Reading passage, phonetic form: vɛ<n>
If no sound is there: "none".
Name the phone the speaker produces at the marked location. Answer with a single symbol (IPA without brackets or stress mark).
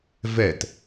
t